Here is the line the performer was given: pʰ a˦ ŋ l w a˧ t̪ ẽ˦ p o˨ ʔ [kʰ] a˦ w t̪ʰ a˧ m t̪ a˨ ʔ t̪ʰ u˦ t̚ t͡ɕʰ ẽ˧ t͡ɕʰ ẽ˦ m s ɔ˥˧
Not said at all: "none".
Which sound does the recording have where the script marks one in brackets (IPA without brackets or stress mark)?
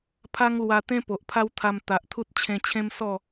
pʰ